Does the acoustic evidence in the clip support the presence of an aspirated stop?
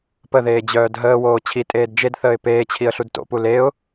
yes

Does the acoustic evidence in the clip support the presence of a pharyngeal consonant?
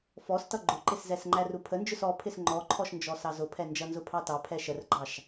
no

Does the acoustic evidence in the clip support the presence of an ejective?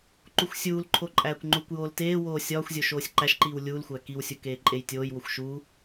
yes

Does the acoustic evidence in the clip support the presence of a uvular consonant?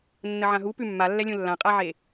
yes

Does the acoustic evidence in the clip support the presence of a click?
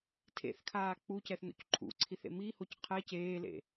yes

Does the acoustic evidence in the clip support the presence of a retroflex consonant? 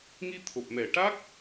yes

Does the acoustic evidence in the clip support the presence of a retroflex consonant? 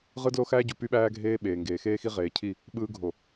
no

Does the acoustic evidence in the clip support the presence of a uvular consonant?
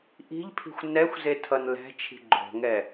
no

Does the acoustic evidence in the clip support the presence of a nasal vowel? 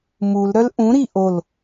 yes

